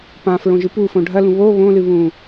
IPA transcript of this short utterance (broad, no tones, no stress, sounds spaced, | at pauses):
p ã f ɹ õ ʒ ɨ p u f õ ɖʱ ɐ l ũ β o β õ l ɨ β ũ